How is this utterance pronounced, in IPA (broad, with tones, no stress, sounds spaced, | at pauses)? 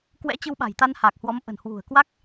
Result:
k w ɛ̰˧˥ t͡ɕ ɨ˧ w ɓ a̤˨˩ j t̪ a˧ n h a˨˩ k̚ h w ɔ˨˦ m ʔ ə̤˨˩ n h w ṳ˨˩ ə̯ k w a˦˥ k̚